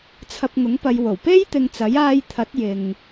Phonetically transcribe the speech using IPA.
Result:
t͡sʰ ɐ˧ p̚ ŋ ʊ˨˥ ŋ p ɐ˨˧ j w o˨˩ w p e˥ j t̪ ɪ˨ ŋ t͡s ɐ˨˥ j aː˧ j t̪ʰ ɐ˨˥ t̚ j ɪ˨ ŋ

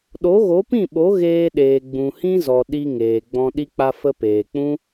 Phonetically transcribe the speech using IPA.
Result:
ɗ o˨˦ ɣ o˨˦ p ĩ˦˨ ɓ o˨˦ ɣ eː˧ ɗ eː˨ ɡ͡b ũ˨ h ĩ˦ z ɔ˨ ɗ i˧ ŋ eː˨ ɡ͡b ɔ̃˧ ɗ i˧ k͡p a˧ f ə˧ p eː˨ k͡p ũ˦

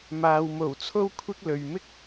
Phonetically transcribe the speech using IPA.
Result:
m aː˨ w m o˨˩ w t͡sʰ o˥ w kʷʰ ɪ˥ k̚ l ɵ˨ ɥ m ɪ˥ k̚

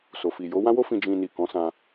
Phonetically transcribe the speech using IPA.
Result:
s o˨ f i˨ j o˨˦ w ã˦ w o˦ f ĩ˧ d͡ʒ ĩ˧ n i˨ k ɔ̃˨˦ s ã˧

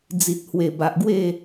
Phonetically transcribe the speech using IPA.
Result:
d͡z i˨ t̚ h w e˨˩ b a˨ ʔ ɡ w e˥˧

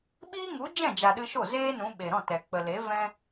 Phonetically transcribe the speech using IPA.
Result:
ɓ iː˦ ŋ u˨˦ d͡ʒ ɛ̃˦˨ d͡ʒ a˨ ɗ ɨ˧ ʃ o˦˨ z eː˦ n ũ˨˦ ɓ e˨ ɾ ɔ̃˦˨ t ɛ˨ k͡p ə˨ l e˨˦ v ɛ̃˦

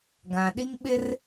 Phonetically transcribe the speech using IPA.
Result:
ɡ ã˨ ɗ i˦ ŋ ɓ ɪ˦ r

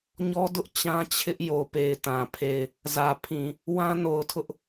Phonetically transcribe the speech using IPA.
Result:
ɲ ɔ˦ d ʊ˦ ʔ t͡ɕ ã˦ t͡ɕʰ ɪ˦ ʔ j o˨ p e˨ ɪ̯ t ã˨ pʰ e˦˨ ɪ̯ | z ä˨ pʰ ĩ˨ | w ã˦ n o˨ ʊ̯ tʰ ʊ˦ ʔ

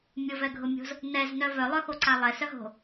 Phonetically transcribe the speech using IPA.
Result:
mʲ ʊ v ɛ ɡʱ ʊ mʲ o̤ z | n ɛ z n œ v œ lˠ œ x o ǀ a lˠ ɛ s œ ɦ o̤

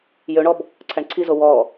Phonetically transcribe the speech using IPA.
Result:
j ø ɳ ɔ b | ǀʰ æ ɳ ǀʰ i z o w ɔ

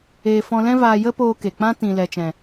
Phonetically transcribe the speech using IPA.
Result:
eː˨ f ɔ̃˧ l ɛ̃˦ v aː˧ j ə˦ p oː˧ k e˨ k͡p ã˦ t ĩ˨ l ɛ˨ t͡ʃ ɛ̃˨

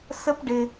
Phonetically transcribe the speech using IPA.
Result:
s ə˦ p ɖ ɪ˧

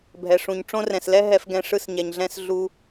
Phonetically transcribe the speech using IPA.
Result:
bʱ ɛ˨ ʂ ũ˨ ɲ ʈ͡ʂ õ˦ r ɛ̃˨ s l ɛ˦ ɦ ɛ˧ f ɡ ɛ̃˧ ʂ ɯ˧ s ɲ ɛ˨ ɲ ɮ ɛ̃˧ s ɮ u˧

